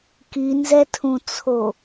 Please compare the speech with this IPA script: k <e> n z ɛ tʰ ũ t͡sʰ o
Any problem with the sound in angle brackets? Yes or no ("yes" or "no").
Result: yes